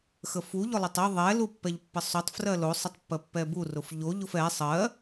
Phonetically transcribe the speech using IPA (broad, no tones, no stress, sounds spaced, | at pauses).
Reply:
x ə f u ʎ ʊ lˠ ʏ tˤ ə ðˤ ɛ l u pː ɛ ʎ pː ə sˤ o tˤ f r ɜ l o sˤ ə tˤ pː ɜ pː ɛ b u r ʊ f ʎ o ʎ ʊ f ɛ sˤ ɜ